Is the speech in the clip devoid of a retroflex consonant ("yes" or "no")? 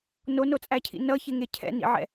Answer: yes